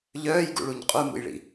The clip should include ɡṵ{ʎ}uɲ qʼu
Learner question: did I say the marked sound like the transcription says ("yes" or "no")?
no